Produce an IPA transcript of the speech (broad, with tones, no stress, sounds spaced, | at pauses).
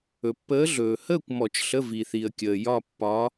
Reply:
ɵ˨ pː əː˧˥ ɮ ɵː˨ h əː˥˧ kʷ m ɔ˨˩˦ t͡ʃ ɬ ə˧˥˧ v i˨ θ i˨ ə̯ kʲ əː˨ j ɒ˥˧ pː ɒ˧˥